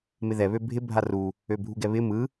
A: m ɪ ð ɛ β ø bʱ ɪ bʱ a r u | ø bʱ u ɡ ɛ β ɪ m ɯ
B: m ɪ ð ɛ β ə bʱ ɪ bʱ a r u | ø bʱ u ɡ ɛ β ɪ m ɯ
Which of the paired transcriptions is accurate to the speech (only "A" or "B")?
A